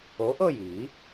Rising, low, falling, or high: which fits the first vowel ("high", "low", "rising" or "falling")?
rising